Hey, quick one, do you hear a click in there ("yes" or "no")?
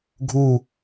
no